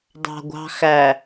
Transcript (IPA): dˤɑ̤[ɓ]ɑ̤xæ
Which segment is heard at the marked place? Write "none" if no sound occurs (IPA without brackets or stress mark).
ɡʷ